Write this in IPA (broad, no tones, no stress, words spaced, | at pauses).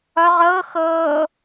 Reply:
ɒ ʁɤː xɤː